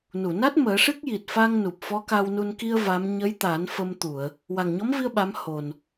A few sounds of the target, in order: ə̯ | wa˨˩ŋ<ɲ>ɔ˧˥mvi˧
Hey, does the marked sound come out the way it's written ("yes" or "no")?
yes